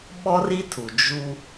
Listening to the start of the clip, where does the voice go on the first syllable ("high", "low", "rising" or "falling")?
high